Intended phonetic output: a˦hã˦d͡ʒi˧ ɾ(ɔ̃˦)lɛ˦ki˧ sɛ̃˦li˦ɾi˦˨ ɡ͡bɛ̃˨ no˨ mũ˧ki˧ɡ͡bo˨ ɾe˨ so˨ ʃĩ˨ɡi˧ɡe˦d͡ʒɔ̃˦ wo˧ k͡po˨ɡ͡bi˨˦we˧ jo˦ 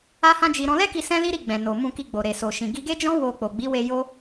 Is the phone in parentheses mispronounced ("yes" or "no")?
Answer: yes